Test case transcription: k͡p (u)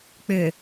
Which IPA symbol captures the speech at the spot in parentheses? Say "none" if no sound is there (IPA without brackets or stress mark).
ʏ